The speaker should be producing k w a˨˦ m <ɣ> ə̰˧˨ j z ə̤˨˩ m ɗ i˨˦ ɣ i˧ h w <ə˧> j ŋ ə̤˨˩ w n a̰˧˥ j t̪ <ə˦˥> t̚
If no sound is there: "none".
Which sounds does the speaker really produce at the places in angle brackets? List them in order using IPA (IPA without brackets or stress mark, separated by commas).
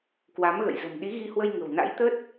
ɣ, ə˧, ə˦˥